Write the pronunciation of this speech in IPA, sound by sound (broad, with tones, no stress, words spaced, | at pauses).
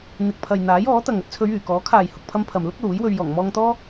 n̪ɪ˨k̚pʰɐ˨j n̪aː˨˥jɔː˨˥t̪ɐ˨ŋ ɐ˧t̚t͡sʰɵ˨˧ɥyː˨˩ kɔː˨˥ kʰaː˨jhʊ˨k̚pʰɐ˧mpʰɐ˨m lʊ˥k̚luː˨˥jwɵ˧ɥ jɔː˨˩ŋmɔː˧ŋt̪ɔː˥